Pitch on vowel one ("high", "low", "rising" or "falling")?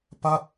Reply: falling